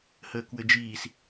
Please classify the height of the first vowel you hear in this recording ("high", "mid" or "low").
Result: mid